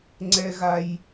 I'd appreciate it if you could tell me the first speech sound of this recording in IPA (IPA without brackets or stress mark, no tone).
ŋ͡ǀ